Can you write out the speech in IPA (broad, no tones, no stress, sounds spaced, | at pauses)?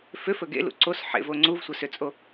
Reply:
f ʏ f ɵ ɡ ḛ l ṵ ǀ o s ħ ḛ v o ŋ͡ǀ u v sʷ ɘ s ʏ t͡sʼ o